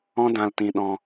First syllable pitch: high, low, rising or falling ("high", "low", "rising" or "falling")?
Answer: high